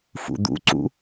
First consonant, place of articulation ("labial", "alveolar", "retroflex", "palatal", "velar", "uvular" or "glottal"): labial